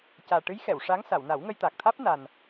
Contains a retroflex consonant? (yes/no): yes